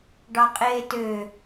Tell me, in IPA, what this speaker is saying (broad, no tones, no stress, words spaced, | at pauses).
ɖɑqʼeːtø